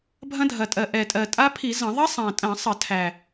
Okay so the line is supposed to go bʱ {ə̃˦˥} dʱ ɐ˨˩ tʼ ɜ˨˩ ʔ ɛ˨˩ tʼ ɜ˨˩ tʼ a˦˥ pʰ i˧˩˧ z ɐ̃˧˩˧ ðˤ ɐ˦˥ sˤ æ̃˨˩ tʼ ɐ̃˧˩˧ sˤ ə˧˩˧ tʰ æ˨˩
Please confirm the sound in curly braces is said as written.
no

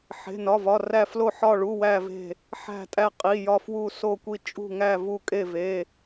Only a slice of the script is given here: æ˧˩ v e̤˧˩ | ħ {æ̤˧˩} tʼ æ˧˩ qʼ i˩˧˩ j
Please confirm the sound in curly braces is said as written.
yes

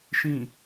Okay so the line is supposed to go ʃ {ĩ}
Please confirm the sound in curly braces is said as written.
yes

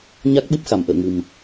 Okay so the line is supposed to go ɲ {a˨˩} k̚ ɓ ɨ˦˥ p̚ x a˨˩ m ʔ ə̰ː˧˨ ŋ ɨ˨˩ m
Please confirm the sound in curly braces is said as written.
no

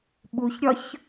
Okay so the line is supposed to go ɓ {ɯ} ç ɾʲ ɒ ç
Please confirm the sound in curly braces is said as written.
no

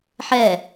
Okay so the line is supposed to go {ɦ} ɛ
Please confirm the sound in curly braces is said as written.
no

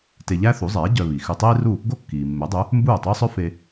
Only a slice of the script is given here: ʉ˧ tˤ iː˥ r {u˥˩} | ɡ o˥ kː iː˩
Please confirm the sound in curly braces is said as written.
yes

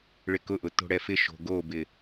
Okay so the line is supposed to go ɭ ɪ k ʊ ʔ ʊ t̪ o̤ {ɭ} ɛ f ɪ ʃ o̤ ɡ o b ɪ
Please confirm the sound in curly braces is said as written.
no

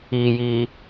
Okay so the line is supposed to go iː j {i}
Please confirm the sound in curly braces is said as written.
no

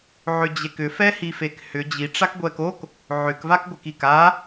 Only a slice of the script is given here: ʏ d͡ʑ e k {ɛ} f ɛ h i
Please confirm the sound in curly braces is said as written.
no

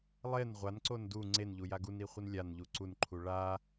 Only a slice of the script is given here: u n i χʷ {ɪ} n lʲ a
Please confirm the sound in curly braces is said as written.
yes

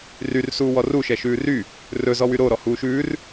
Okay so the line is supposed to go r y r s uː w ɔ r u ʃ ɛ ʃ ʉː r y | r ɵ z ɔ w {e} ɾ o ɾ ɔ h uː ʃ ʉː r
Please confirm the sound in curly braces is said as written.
no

